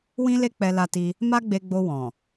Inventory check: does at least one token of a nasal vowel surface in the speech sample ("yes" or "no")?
yes